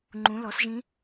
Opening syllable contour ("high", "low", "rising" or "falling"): rising